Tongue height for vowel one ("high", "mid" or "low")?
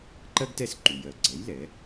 mid